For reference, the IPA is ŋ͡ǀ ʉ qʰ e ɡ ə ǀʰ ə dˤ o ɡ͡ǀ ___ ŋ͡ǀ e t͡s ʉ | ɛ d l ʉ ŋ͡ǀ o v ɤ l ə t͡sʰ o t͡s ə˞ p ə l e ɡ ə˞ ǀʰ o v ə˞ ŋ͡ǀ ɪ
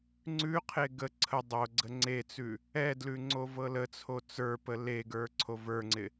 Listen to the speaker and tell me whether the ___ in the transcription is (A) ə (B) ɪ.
A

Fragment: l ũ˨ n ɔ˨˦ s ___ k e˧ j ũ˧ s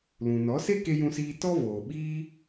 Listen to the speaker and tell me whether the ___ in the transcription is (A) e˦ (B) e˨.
A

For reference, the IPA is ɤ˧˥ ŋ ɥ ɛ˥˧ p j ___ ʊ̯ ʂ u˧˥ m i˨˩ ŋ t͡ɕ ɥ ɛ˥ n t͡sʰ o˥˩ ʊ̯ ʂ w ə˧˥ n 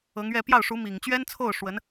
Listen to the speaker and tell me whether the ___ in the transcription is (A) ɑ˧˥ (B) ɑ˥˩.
B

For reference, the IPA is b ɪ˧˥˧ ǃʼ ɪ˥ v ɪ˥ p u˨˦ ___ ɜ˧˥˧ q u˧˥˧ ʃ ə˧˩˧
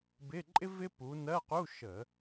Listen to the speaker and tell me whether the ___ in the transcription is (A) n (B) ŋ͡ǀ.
A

